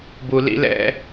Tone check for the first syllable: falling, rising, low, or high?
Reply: low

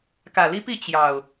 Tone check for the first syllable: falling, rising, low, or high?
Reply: low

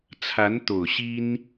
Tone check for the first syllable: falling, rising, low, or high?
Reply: rising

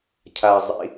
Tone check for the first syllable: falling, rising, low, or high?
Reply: low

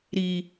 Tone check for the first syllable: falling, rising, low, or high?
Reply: low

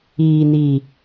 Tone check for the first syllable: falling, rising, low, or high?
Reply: low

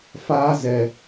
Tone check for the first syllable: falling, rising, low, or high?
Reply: high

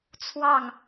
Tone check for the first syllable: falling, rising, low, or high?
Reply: falling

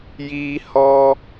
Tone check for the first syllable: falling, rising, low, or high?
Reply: high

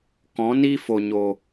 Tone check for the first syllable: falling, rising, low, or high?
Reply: rising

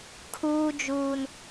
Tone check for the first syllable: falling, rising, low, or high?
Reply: high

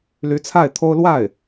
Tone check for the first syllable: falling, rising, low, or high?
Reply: rising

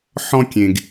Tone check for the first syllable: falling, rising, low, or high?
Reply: high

